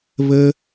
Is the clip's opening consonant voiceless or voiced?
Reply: voiced